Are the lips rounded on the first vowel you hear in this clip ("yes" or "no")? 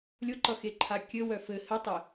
yes